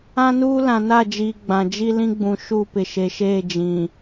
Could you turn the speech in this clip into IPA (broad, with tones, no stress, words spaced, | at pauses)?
ã˦nuː˦ lã˨na˦˨d͡ʒiː˨ ɡ͡bã˨d͡ʒi˦ lĩ˦ɡ͡bũ˨ ʃu˦˨pɪ˨ʃe˨ʃeː˦˨ d͡ʒĩ˨